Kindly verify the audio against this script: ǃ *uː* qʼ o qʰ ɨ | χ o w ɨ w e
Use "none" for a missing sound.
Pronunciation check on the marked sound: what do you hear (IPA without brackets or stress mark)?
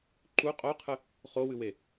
u